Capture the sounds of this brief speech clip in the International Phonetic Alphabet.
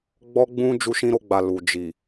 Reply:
ɡ͡b ɔ˦ ɡ͡b ũ˦ d͡ʒ u˦ ʃ ĩ˦ ɾ o˧ ɡ͡b a˨ l u˨ d͡ʒ i˨

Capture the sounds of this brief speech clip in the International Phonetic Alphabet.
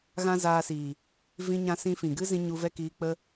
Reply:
ɣ ã˦ z aː˧ s iː˨ | v ĩ˦ ɲ ã˦ s ĩ˦ f ĩ˨ ɡ ɨ˦ z ĩ˧ ɲ u˧ v ɛ˦ k iː˧ k͡p ə˦

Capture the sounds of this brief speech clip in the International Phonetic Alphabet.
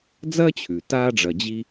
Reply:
d͡z ɐː˥ t͡ɕʰ ʉ˩ t aː˦ ɖ͡ʐ ɐ˨ d͡ʑ i˦

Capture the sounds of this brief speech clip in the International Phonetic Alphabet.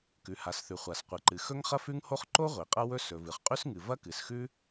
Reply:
k ʉ˩ h a˩ s θ ʉ˩ χʷ a˩ s qʷ ɨ˩ ǃ ɨ˩ x ɵ˥ ŋ χ ɐ˥ f ʉ˥ ŋ h o˥ χ ǃ o˥ ʁʷ i˩ qʼ ɐ˥ w ɵ˥ s ɵ˩ v ɨ˩ χ qʼ ʉ˥ s ŋ ɨ˩ v ɐ˥ k ɨ˩ s x ʉ˥

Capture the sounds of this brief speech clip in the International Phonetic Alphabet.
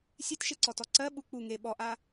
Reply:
sʲ e t ʃ e ǀ ɔ t ɔ ǀ ɜ ɓ u k͡p u ŋ e ɓ ɔ ʔ a

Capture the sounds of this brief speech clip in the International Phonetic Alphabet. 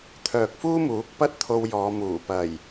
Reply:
t̪ʰ œː˨ k̚ f uː˥ m uː˨˥ k̚ p ɐ˥ t̚ t̪ʰ o˧ w j ɔː˨˧ m uː˨˩ p ɐ˨˩ j

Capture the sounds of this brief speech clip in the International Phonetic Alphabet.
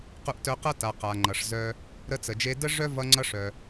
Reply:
q u˧ ʔ t œ˧ q ʌ˥ t a˩ q a˩ ŋ͡ǃ ʌ˩ ʂ z œ˧ | ɾ ə˧ t͡s ə˩ d͡ʒ e˧ d ə˥ ʐ œ˥ v ʌ˧ ŋ͡ǀ ʌ˧ ʂ œ˩

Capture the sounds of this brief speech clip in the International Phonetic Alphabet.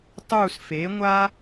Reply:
tˤ uː˦˨ s f eː˩˥ ŋʷ a˥

